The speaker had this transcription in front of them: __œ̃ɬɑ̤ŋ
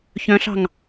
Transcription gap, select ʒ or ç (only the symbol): ç